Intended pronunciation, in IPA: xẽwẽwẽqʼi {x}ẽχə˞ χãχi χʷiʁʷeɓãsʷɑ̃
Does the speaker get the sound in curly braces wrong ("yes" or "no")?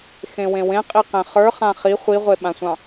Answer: yes